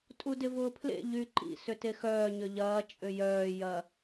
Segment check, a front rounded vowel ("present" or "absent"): present